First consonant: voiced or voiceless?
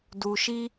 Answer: voiced